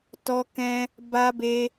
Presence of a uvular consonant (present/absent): absent